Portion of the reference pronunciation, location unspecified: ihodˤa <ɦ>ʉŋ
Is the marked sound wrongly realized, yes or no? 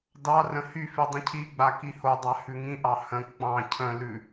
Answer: yes